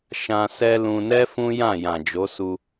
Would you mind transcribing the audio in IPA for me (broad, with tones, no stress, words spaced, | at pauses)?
ʃã˧ sɛ˦lũ˧ nɛ˦ fũ˦jã˦˨ jã˨d͡ʒo˨˦su˧